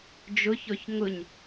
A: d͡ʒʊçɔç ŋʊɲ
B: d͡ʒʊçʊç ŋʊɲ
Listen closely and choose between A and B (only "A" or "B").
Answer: A